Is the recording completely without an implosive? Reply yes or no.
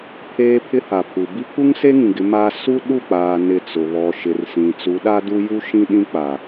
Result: no